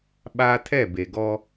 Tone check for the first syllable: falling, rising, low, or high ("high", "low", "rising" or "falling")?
high